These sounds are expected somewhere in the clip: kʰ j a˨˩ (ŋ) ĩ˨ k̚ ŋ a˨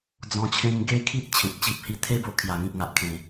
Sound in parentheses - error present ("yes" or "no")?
no